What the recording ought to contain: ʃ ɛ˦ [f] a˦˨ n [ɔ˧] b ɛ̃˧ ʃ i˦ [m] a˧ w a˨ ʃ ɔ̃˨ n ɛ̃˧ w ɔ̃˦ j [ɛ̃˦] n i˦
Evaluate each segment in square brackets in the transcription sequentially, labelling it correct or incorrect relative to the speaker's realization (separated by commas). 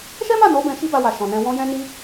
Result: incorrect, incorrect, incorrect, correct